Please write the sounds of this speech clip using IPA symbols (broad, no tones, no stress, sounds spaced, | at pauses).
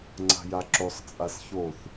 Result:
ŋ͡ǀ a̤ j a ǁ o sˤ t͡sʼ a s ç o θ